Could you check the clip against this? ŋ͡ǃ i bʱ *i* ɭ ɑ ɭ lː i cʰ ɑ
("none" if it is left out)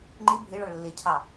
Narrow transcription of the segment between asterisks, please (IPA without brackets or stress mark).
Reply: i